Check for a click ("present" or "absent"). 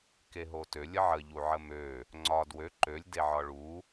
present